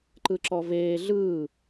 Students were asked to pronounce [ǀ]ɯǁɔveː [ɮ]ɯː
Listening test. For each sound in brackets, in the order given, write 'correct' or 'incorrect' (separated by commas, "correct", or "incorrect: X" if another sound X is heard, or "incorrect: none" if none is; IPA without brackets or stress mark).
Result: incorrect: ǃ, correct